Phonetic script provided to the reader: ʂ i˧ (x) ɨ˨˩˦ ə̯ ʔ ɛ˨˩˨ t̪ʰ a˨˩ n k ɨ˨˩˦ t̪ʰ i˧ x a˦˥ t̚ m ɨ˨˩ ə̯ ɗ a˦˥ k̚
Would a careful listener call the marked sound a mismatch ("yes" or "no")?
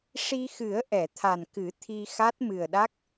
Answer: no